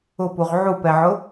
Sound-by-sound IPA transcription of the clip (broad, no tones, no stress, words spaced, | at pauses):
ʊpuʁ ʕupɛʕʊ